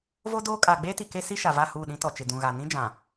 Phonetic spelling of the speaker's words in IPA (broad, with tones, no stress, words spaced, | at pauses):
vo˦doː˦ kʼaː˨ɡ͡beː˦ti˨ ke˦si˦ʃa˨va˦˨ huː˦˨ɗĩ˦ tɔ˨ t͡ʃɪ˨dũ˨ɣa˨ nĩ˦d͡ʒã˨